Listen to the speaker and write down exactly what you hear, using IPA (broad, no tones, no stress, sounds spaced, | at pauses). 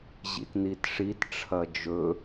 ʑ ḭ t n i t ʂ i t ʈ͡ʂʰ ɐ d͡ʒ ɵ